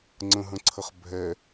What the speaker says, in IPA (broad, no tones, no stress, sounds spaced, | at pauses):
ŋ͡ǀ ə̃ ɦ ə̃ ǀʰ ə χ bʱ ɛ